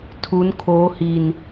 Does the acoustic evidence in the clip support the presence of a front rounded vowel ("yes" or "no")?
no